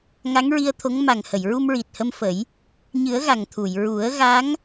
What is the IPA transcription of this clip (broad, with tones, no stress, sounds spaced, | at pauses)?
ŋ a˧˥ ŋ ɹ i˧ ə̯ t̪ʰ o˧˥ ŋ m a˨˩ ŋ h ə˨˩˨ j ɹ u˧ m ɹ i˨˩ t̚ h ə˧ m f ə˨˩˦ j | ɲ ɨ˨˩˦ ə̯ ɣ a˨˩ ŋ t̪ʰ u˨˩˨ j ɹ u˨˩˦ ə̯ ɣ a˧˥ ŋ